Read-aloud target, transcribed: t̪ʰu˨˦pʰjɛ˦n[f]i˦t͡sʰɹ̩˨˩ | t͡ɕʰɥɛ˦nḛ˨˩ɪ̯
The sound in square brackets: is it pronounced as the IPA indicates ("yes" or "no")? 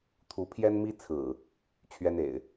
no